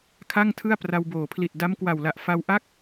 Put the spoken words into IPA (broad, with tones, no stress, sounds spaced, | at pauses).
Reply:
kʰ a˥˩ ŋ tʰ ɯ˥˩ a̯ p r a˧ w b oː˩˦ pʰ l i˨˩ t̚ d a˦˥ m k w a˨˩ w l a˨˩ ʔ f a˧ w ʔ a˥˩ k̚